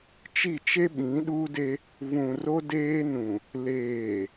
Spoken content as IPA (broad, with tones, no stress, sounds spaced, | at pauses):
t͡ʃ i˦˨ t͡ʃ e˦ ɓ ĩ˨˦ ɗ uː˦ d e˦ | v ũ˨ r o˦ d eː˦ n ũ˨ | l eː˨